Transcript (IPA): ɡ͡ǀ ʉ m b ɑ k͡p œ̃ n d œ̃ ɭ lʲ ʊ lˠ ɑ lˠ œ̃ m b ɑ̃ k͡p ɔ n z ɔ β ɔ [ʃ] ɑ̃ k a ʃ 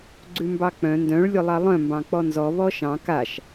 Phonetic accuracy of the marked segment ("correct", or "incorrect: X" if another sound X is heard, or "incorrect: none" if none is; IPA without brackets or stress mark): correct